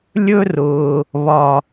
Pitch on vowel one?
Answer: high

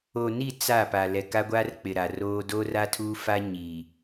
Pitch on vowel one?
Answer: low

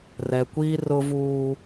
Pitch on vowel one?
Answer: low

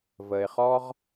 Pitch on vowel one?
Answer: low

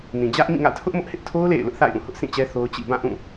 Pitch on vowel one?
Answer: low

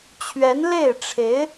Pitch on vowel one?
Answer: rising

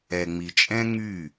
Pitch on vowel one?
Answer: low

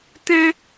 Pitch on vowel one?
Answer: high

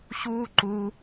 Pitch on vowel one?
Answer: high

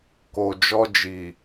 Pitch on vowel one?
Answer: low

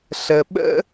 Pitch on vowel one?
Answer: low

